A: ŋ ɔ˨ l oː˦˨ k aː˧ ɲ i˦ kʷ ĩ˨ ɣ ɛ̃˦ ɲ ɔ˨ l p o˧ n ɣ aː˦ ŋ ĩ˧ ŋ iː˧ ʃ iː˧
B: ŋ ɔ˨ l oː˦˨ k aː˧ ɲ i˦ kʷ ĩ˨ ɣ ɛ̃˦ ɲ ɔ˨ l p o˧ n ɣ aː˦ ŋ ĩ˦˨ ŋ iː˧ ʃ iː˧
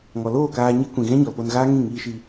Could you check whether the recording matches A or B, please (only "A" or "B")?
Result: B